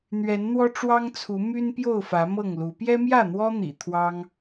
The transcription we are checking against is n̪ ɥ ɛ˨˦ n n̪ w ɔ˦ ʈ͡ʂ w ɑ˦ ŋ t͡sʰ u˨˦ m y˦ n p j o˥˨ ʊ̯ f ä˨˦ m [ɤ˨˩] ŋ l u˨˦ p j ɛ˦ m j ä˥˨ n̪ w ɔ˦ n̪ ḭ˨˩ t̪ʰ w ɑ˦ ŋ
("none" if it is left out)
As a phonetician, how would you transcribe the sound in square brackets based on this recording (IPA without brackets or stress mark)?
ɤ˥˨